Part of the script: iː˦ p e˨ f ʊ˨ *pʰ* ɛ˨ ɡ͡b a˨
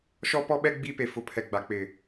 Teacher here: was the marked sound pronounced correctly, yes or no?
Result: yes